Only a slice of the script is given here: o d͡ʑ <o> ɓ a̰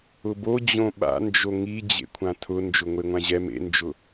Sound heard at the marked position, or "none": õ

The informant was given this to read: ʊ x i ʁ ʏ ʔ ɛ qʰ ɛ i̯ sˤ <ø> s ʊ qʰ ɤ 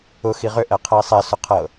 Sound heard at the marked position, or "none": ɛ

